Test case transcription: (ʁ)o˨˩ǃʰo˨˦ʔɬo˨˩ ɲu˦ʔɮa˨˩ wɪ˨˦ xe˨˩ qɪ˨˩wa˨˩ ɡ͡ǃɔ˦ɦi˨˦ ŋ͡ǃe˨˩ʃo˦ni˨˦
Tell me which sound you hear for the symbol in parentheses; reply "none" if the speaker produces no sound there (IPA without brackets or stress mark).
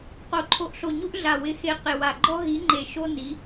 q